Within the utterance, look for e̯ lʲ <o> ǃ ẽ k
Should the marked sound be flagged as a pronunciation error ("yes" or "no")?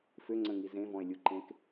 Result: yes